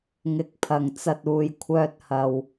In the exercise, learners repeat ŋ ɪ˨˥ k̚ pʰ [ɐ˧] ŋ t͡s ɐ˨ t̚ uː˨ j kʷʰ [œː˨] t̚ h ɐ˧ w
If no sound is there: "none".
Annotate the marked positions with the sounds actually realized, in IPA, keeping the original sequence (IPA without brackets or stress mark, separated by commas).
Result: ɐ˨, œː˧